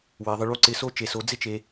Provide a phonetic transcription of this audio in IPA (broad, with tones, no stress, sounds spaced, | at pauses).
w e˩˧ ðˤ ɪ˧ ɭ u˧˥ ǀ ɪ˧˥ s o˥ t͡ʃ e˧ s o˧˥ d͡z ɪ˥ t͡ʃ e˧